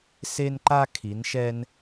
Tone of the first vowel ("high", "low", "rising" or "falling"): high